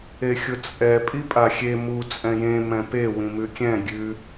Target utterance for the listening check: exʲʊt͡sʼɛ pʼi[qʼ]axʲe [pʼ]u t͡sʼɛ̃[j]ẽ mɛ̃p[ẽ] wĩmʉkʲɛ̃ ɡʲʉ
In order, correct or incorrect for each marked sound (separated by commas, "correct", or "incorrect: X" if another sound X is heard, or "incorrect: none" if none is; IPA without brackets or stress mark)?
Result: incorrect: pʼ, incorrect: m, correct, incorrect: e